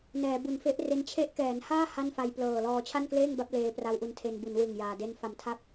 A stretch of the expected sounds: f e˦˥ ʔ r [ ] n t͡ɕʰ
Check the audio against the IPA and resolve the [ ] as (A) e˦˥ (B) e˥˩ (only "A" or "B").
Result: A